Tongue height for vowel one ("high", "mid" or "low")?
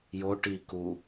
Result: mid